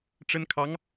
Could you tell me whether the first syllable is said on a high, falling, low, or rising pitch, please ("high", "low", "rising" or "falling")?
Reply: high